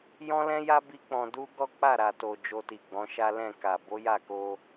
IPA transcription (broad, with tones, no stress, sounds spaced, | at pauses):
j ɔ̃˦ l ɛ̃˦ j a˦ b i˦ k͡p ɔ̃˧ d u˦ ɡ ɔ˦ k͡p a˦˨ ɾ a˨ t o˨ d͡ʒ o˧ t i˨ ɡ͡b ɔ̃˨˦ ʃ a˦ l ɛ̃˦˨ k a˨ b o˨˦ j a˦˨ k o˧